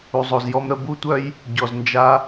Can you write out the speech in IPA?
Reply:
u˨zˤo˨zjɔ˧mɾə˧ bu˦tʷœ˦j | ɟɔ˨znd͡ʒa˧

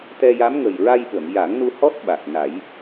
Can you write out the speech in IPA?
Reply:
t̪ɛ˧ja˧˥mŋə˨˩j ɹa˧jɓə˨˩˨mja˨˩˦ŋnu˧ hɔ˦˥t̚ɓa˨˩k̚ na˨˩˦j

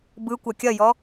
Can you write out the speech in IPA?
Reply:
bɯkʷɐ kʲɐjɔ

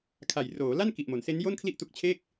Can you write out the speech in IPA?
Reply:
kʰa˨˩j roː˩˦la˥˩n ki˨˩ʔmo˩˦nse˦˥njo˥˩n kʰli˥˩ʔtu˦˥k̚t͡ɕʰeː˥˩k̚

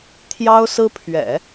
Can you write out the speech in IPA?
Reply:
t̪ʰjɑ˥ʊ̯sɹ̩˥ pʰɥɛ̰˨˩˦

